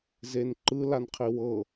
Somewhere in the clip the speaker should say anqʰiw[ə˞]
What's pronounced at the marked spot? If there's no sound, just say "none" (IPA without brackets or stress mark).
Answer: ɤ